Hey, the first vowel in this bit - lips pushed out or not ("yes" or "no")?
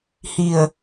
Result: no